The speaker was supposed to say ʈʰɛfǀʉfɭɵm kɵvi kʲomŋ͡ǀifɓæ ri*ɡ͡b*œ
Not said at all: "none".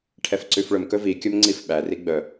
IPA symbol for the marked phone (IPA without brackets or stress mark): ɡ͡b